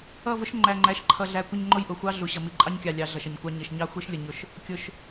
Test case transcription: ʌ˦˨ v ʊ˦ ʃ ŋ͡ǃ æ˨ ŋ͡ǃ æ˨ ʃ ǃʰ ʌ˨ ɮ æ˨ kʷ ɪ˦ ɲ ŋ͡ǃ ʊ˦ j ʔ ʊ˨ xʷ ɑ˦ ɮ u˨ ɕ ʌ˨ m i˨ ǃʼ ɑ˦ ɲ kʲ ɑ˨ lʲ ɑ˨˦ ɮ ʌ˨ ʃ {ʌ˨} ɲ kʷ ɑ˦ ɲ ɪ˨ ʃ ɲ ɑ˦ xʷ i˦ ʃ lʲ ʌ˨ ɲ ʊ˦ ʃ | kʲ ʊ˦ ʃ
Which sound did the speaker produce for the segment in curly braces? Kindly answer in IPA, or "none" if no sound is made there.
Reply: ʌ˨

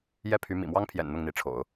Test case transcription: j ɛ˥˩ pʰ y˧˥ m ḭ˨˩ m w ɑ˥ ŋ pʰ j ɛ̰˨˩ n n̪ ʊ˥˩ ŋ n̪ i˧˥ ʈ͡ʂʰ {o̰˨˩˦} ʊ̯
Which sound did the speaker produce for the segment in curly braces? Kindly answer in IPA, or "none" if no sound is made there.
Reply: o̰˨˩˦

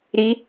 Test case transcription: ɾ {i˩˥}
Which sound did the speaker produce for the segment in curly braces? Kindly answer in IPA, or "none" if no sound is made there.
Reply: i˧˥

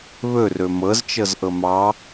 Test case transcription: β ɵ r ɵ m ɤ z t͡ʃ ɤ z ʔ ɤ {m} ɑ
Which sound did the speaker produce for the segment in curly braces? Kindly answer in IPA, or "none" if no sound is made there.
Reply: m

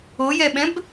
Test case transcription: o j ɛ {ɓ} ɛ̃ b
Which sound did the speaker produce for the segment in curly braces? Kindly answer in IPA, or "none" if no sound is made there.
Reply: ɓ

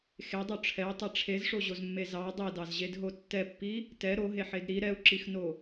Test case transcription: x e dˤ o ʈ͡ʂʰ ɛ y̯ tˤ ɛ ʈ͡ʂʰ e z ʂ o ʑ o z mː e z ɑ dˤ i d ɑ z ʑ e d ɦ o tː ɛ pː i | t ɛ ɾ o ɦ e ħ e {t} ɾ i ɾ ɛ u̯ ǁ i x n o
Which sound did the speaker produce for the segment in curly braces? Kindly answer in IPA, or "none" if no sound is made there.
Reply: d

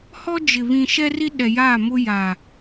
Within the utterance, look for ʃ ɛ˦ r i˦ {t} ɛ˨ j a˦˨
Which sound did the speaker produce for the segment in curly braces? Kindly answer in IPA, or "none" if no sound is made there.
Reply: ɗ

